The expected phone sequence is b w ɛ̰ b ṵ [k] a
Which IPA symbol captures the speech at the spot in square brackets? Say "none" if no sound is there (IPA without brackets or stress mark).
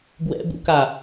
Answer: k